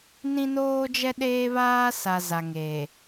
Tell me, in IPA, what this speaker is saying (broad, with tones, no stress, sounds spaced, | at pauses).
n ĩ˦ n oː˦ d͡ʒ ɛ˦ ɗ eː˦ β aː˦ s a˨ z a˨ ŋ eː˨